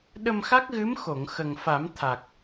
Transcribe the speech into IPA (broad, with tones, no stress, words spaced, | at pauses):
ɗə˧mxa˦˥k̚ɣɨ˧˥m xo˨˩˨ŋ xə˨˩ŋfa˨˩˦m t̪ʰa˨˩k̚